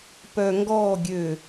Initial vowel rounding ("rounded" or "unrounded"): rounded